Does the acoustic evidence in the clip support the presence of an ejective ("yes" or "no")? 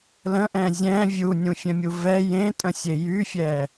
yes